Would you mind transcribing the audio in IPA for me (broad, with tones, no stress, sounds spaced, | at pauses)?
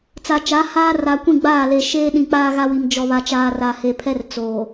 t͡s a˨ t͡ʃ a˨˦ h aː˦ r a˨ kʷ ĩ˦˨ ɡ͡b aː˦˨ l e˨ ʃ eː˦ ɗ ĩ˨ k͡p aː˦ ɣ a˦ w i˨ m d͡ʒ ɔ˨ β a˨ t͡ʃ aː˨ r a˨ h e˨ pʰ ɛ˦ r t͡s oː˨